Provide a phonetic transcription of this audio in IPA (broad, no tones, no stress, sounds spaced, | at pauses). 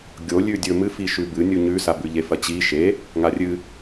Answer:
ɡʲ o lʲ ʉ dʲ ɵ m ɨ f i ʃ ʉ b ɨ nʲ u ɲ ʉ s a b ʉ ʎ e f ɐ t͡ɕ i ʃ e | ŋ a rʲ ɨ